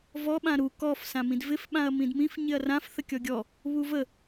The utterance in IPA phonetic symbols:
vɔ ɓãɾu kɔf sãmĩdvɪf ɓãɐ̯mĩdmĩf ɲɪɐ̯rãf θəkʲɔɡʲɔ | βuvə

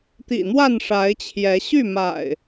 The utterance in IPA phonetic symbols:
t̪ḭ˨˩n̪wa˥˨nʂa˨˦ɪ̯t͡ɕʰjɛ˨˦ ɕy˥˨ma̰˨˩ɪ̯

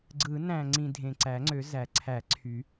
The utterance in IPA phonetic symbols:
ɡ͡ǀɯ˨˩˦ næ̃˨˩ŋ͡ǀĩ˨˩ dʱẽ˨˩ǀæ˨˩˦ŋ͡ǀø˨˩˦ zæ˨˩˦ ǀʰæ˨˩˦ǀʰy˨˩˦

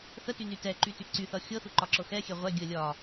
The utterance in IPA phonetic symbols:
θətyny tɛǃyty ǀyθʌ xʲɤθuǃɒǁɤ xɛxʲɛ ʁʷɛ ɡʲə lʲɒ

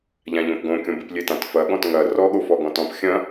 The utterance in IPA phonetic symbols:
ʎãʎõpɡõkʲõ bɨplʲetãt fɐ ɠɔ̃tŋɐ rɔɠofɔ ɡɔ̃tɔ̃p xʲɐ̃

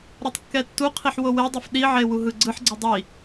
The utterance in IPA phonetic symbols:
ɾɔtˤkːɛtːuqʰiħ wowedˤif ɗiʕe wuɦɯɡ͡ǀɯħɡ͡ǀi dˤi

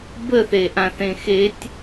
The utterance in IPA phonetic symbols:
bəθeʔãθẽ xetʲ

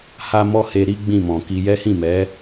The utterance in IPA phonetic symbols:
ha˦mɔ˦ he˧ɾi˦ ɡ͡bĩ˦˨mɔ̃˨ki˧ jɛ˦hĩ˦˨mɛ˨˦

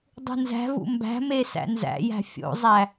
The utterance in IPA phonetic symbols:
dˤṳnzæ̤vṵ mbæ̤me sæ̰nzæ̰jæ̤ fʲo̰zˤæ

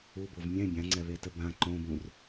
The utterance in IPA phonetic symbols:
ubov mʲɛ̃ bʲãŋ͡ǀɛβetə bã ǃõbũr

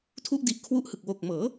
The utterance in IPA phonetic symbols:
tʰu˦˥ʔdi˨˩ʔkʰwu˦˥ʔhɯ˨˩k̚ wo˨˩k̚ mɤː˩˦

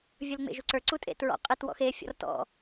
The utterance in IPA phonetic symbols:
vʲə˞lŋ͡mḛʒuǀə˞ ǀutʼḛtɹɔ̰ qʼɘt wɔ̰xe fʲɔ̰rtɔ̰

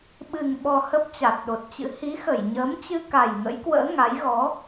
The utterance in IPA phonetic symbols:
ɓɨ˨˩ŋɓɔ˨˩ hə˦˥p̚t͡ɕa˨˩t̚ɗo˨˩t̚t͡ɕɨ̰˧˥ hi˨˦xə˧˩j ɲəː˨˦mt͡ɕɨ˧ka˨˩j ŋə̰˧˥jkwə̰ː˧˥ ŋa˨˦jɣɔ˨˦

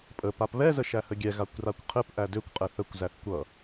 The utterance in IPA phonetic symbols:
pʼə papβɛ zəʃæhəɡʲɛ ɣakʷrakʷqʰɘp ʔædøkʷ qʼɛθəkʷ zæθkʷʌ

